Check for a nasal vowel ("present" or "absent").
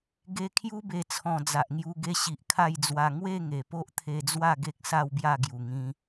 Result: present